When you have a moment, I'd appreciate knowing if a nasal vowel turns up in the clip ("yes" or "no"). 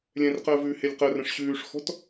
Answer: yes